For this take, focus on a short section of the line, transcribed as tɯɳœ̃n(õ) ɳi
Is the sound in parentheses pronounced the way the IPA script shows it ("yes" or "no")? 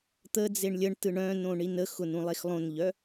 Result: yes